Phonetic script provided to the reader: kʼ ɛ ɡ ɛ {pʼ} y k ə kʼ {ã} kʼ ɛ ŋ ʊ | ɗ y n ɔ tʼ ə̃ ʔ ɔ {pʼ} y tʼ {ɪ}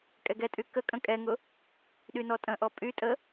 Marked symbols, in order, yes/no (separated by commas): no, no, yes, no